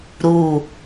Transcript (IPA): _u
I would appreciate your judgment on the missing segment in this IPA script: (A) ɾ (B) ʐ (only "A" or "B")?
A